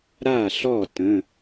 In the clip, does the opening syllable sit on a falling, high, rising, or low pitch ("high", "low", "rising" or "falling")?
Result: falling